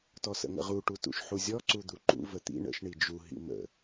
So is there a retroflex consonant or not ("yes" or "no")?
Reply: yes